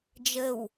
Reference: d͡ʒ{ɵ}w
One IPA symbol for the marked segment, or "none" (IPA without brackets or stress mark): ə